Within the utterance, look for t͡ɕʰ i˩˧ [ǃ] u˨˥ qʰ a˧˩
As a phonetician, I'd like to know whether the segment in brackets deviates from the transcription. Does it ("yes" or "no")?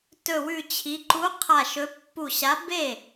no